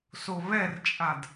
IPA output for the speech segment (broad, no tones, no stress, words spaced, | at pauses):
soβɛrt͡ʃʼad